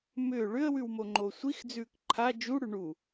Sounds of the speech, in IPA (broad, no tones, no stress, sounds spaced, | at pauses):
m ʏː ɭ ʏ ə̯ w ʉ w m o ŋ͡ǃ o sʷ i x d͡z ʉː k ǃʰ a d͡ʒ u ɽ ʉ ɳ u